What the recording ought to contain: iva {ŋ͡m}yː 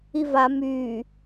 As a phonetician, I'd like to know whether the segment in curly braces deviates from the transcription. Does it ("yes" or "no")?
yes